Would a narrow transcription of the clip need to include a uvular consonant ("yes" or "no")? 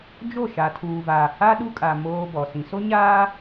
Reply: no